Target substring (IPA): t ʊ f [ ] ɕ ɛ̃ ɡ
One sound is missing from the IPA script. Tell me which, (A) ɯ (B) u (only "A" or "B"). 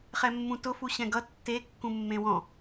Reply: B